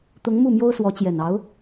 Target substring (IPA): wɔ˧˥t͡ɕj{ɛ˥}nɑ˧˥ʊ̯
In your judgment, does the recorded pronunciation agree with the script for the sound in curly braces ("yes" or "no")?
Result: no